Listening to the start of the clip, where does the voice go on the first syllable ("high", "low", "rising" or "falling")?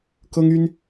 high